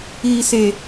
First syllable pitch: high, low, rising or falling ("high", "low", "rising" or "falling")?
low